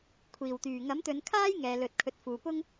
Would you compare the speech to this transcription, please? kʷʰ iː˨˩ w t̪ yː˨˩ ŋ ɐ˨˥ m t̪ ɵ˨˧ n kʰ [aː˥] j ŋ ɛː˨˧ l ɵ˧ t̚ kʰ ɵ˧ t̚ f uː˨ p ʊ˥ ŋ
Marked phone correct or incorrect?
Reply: correct